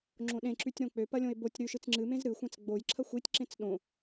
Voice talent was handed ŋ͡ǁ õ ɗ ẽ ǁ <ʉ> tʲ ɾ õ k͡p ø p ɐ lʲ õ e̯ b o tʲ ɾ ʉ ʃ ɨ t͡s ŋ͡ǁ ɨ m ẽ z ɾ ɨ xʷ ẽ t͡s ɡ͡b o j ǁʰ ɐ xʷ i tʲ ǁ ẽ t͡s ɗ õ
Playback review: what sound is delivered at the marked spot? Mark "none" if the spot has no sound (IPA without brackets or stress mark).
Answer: ʉ